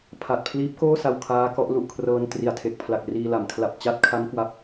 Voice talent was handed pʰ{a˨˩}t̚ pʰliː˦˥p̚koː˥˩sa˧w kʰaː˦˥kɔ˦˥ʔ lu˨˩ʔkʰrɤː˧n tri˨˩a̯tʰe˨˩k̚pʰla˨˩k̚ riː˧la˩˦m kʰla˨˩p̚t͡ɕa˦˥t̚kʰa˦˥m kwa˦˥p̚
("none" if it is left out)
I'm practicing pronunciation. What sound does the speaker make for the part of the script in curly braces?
a˨˩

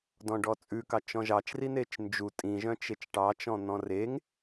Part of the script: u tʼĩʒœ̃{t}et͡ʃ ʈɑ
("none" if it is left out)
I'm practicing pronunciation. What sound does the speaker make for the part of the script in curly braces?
t͡ʃ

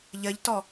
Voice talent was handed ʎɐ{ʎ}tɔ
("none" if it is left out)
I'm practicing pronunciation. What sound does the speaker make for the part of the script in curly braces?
ʎ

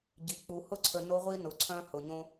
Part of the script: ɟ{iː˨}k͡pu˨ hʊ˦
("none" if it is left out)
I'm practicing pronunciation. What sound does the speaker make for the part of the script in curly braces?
i˨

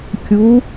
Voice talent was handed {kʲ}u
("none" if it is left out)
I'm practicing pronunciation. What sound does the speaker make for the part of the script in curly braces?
kʲ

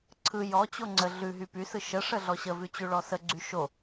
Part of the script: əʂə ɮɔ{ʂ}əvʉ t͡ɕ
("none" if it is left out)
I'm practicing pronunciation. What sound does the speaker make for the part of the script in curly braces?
ɕ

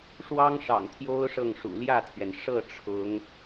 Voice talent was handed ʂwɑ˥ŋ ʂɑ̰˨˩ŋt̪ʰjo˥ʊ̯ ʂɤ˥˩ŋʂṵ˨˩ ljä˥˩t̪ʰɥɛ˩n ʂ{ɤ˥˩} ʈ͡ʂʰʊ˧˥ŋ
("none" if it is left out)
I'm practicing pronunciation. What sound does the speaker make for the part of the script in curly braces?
ɤ˥˩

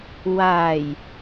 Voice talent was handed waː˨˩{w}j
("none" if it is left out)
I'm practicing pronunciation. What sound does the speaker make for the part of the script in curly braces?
none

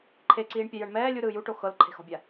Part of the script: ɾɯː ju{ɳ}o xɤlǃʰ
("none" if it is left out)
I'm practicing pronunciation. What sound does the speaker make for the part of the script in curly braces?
ʈ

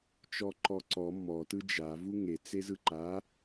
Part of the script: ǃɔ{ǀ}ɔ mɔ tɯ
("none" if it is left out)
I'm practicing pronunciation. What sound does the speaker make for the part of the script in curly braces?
ǀ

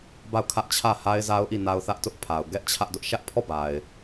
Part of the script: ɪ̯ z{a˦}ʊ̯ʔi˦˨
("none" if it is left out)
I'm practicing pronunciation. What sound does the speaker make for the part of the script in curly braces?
a˦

